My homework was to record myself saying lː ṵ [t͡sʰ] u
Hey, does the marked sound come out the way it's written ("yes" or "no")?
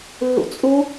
no